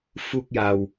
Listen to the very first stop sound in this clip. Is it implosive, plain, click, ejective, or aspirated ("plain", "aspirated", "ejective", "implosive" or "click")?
plain